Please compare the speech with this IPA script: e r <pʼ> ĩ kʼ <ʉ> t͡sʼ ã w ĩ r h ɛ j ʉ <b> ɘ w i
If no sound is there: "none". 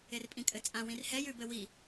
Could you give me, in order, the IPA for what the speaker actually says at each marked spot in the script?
pʼ, ɘ, b

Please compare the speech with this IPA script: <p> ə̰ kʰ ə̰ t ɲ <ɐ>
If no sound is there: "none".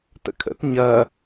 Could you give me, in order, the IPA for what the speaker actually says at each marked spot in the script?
t, ɐ

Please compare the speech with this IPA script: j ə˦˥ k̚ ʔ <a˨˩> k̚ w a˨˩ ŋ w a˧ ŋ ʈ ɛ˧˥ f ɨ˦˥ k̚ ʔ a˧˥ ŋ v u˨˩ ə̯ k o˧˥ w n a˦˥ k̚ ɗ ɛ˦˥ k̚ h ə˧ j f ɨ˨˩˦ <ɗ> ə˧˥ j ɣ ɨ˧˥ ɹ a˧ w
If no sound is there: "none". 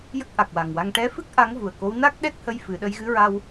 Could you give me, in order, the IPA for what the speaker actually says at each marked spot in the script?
a˨˩, ɗ

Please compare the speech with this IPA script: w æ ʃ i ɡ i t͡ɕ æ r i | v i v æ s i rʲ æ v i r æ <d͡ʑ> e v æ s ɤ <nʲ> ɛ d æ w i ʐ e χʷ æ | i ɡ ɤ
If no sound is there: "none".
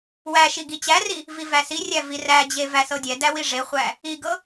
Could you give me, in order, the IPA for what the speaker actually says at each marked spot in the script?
d͡ʑ, dʲ

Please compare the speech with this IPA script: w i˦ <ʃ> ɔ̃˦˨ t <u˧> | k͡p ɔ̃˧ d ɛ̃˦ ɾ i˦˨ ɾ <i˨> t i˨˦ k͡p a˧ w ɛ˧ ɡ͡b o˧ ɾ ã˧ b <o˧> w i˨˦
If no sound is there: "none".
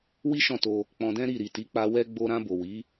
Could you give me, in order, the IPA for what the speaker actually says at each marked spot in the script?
ʃ, o˧, i˨, o˨

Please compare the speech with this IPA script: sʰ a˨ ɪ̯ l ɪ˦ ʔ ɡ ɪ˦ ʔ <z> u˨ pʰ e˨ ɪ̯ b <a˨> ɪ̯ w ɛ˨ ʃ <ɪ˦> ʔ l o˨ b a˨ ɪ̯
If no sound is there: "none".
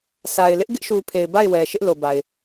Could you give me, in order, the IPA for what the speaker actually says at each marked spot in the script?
ʃ, a˦˨, ɪ˦

